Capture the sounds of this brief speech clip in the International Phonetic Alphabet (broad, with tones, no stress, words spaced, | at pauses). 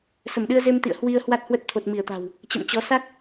sə˧˩mɗɨ˧ə̯ze˧mt̪ḭ˧˨ə̯ hwi˧ə̯ hwa˦˥t̚hwə˦˥t̚ t̪ʰo˨˩t̚mi˧˩ə̯t̪a̤˨˩w | t͡ɕə̰˧˨mt͡ɕɔ˨˦ sa˦˥k̚